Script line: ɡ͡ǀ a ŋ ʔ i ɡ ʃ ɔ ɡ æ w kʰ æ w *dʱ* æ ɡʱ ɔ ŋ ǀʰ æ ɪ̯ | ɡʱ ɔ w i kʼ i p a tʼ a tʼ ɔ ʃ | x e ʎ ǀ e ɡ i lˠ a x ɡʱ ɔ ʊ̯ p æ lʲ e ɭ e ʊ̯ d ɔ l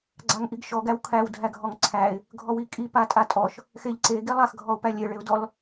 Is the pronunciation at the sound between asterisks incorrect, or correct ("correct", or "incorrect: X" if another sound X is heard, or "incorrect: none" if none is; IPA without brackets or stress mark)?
correct